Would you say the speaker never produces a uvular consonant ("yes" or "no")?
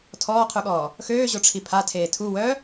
no